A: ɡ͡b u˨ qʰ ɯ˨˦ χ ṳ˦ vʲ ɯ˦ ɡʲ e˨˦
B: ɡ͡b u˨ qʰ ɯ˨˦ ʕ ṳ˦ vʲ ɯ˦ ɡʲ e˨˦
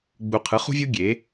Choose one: A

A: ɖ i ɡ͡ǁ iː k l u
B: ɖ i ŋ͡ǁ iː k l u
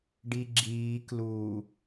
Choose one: A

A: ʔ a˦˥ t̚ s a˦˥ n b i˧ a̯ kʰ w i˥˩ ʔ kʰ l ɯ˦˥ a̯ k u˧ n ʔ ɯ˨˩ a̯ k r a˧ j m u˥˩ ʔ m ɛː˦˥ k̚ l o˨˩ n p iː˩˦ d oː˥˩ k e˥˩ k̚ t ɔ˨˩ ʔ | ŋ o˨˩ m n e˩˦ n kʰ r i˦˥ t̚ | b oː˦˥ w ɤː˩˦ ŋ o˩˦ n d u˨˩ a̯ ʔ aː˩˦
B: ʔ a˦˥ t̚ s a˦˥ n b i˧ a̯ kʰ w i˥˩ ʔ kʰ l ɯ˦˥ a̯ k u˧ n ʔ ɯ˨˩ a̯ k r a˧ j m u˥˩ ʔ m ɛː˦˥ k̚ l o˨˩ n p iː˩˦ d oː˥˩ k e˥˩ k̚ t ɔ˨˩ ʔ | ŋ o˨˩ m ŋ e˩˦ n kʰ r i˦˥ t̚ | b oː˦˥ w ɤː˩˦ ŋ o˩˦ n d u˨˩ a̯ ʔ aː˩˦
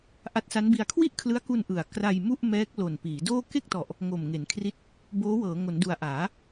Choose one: B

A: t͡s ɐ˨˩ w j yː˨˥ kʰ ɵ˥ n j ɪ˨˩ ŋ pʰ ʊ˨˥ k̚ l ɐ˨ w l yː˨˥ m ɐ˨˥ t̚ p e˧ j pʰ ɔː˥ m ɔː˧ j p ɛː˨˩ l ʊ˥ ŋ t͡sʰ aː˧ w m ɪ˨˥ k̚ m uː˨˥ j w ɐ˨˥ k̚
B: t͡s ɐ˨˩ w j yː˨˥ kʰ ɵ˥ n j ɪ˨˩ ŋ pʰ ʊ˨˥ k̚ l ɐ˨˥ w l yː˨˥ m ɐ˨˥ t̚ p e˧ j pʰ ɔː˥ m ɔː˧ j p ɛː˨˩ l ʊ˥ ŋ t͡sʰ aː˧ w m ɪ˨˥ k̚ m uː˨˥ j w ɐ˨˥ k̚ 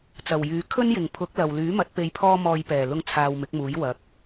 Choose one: A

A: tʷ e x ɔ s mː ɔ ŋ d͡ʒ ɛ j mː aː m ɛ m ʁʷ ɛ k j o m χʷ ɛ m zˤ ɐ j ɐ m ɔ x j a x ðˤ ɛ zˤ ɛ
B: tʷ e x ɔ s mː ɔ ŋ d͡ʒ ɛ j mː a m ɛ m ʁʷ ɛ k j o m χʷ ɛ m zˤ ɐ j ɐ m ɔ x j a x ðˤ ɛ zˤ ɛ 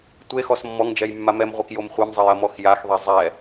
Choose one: B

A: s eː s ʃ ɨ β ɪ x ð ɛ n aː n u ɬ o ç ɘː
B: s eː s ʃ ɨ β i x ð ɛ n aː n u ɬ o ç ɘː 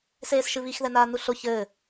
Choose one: B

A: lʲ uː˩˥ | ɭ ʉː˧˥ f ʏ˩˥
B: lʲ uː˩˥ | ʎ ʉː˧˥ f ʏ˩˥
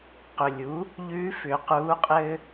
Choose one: B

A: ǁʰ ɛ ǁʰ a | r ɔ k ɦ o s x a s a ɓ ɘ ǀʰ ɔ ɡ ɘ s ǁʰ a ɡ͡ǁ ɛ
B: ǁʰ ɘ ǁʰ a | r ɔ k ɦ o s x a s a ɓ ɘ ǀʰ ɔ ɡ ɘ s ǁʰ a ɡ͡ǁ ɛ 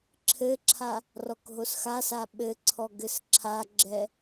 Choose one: B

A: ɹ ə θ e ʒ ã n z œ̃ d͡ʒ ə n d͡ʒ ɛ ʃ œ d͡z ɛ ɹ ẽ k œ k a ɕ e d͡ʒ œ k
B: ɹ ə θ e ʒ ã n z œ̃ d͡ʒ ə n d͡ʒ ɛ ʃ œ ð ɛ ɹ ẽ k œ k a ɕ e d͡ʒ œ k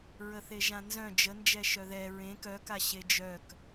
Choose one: B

